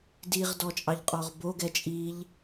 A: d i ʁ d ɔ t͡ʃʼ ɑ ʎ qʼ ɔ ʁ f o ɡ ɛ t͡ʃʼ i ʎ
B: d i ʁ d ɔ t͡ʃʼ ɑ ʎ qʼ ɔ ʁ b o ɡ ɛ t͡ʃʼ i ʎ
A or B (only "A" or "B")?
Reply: B